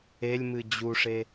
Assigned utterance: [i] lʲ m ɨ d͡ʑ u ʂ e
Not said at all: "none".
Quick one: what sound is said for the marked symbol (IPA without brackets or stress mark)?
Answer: e